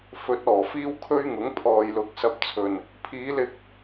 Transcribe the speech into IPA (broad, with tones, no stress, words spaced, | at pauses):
fɵ˨˥t̚ ɔː˨˩fiː˥w kʰɵ˥ɥŋʊ˨˥ŋ pʰɔː˨jlʊ˨˥k̚ sɐ˨p̚t͡sʰɵ˨˩n | pʰiː˨˧lɪ˧k̚